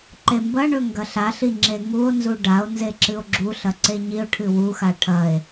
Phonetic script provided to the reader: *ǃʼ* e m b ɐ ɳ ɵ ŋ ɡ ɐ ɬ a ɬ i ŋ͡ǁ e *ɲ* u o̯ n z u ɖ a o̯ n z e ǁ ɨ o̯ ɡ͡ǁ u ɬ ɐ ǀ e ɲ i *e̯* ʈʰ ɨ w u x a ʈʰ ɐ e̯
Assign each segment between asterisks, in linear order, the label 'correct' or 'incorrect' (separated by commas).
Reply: incorrect, incorrect, incorrect